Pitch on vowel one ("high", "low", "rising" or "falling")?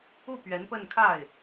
falling